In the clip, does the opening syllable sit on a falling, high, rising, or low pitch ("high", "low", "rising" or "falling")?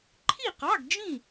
falling